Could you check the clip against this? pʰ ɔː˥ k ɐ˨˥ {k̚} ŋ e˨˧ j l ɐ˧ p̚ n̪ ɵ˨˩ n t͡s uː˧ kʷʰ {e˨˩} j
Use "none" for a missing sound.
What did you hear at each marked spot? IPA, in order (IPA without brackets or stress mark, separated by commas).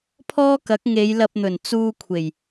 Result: k̚, e˨˩